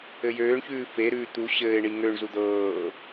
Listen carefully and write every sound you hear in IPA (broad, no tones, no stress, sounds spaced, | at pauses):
ɘ j øː ɳ ç ʉː f e ɾ ʉː t̪ u ɕ ɘː ɪ̯ ɳ i ŋ ø ɳ z u d̪ ɤː